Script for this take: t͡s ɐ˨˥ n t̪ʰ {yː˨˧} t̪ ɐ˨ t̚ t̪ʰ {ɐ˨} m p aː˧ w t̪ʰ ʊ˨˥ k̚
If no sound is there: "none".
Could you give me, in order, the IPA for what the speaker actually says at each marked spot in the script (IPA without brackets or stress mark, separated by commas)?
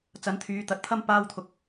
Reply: yː˨˧, ɐ˥